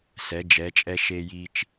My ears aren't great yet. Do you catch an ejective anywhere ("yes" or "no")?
yes